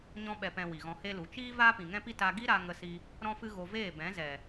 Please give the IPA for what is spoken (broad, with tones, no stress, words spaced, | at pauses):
ɲɔ̃˧ɓɛ˨pɛ̃˨ wi˨ɣɔ̃˧he˦lu˨˦ t͡ʃiː˦ vaː˦pĩ˨ŋɛ̃˦pi˦ ta˧ɡi˦ɾa˧ ŋə˧si˧ | ɾɔ̃˦fɨ˦ɣo˧ veː˦˨bɛ̃˨˦zɛ˨